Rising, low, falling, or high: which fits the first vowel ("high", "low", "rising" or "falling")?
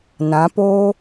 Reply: rising